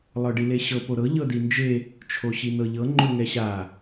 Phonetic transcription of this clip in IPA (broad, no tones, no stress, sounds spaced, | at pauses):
lˠ ɤ ɖ i l e ɕ ɤ p o ɾ ɤ ʎ ɤ d i n d͡ʒ e | t͡ʃʰ o ɕ i n ɤ ʎ ɤ ŋ͡ǃ o ŋ ɛ ɕ a